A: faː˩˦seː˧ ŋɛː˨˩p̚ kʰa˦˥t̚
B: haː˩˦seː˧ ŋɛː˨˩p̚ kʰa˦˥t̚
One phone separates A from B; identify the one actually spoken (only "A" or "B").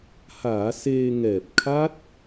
B